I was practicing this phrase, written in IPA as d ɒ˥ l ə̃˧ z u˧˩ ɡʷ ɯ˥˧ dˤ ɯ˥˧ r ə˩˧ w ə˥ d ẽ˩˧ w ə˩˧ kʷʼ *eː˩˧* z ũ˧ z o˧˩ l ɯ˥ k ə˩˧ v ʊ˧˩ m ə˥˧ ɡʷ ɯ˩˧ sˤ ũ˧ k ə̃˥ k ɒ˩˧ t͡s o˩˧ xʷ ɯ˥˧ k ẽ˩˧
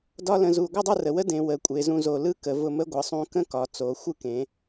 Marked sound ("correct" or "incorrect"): incorrect